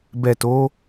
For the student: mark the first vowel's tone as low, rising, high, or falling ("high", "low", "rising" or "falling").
low